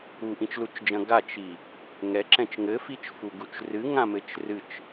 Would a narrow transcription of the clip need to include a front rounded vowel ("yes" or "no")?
no